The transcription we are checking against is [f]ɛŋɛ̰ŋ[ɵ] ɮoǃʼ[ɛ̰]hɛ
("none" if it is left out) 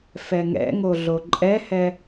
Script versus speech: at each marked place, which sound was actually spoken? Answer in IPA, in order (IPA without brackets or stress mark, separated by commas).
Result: f, o, ɛ